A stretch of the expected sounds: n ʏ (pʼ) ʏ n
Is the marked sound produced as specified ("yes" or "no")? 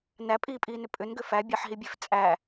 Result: yes